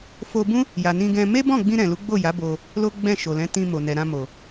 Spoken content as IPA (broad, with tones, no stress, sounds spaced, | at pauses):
f o˧ b ũ˦ | j a˨ n ĩ˧ ɡ ɛ̃˧ m e˦ b ɔ̃˦˨ ɡ͡b ĩ˧ ɾ ɛ̃˨ l u˨˦ ɡ͡b o˦˨ j a˨˦ b o˧ | l o˦ ɡ͡b ɛ̃˦˨ ʃ o˨ l ɛ̃˨˦ t ĩ˧ m o˨ n ɛ˨ ɾ ã˧ m o˨